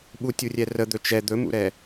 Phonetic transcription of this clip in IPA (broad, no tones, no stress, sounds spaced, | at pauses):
ɓ u tʲ u rʲ ɛ r ə d̪ ɵ t͡ʃ ɛ d̪ ɵ m ṵ ɾ ɛ